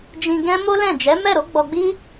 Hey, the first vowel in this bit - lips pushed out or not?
no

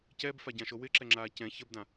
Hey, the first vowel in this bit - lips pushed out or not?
no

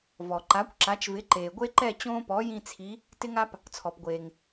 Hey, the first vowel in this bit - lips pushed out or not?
yes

